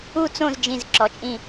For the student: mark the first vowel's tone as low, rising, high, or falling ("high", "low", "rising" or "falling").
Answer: falling